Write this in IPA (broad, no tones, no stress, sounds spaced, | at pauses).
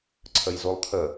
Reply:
ǀʰ ə j z u lˠ t̪ʰ ə